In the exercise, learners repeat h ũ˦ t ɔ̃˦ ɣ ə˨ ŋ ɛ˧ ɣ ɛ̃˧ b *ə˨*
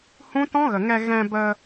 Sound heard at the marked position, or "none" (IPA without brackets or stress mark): ə˧